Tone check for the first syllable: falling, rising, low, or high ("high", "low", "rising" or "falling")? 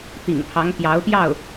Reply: low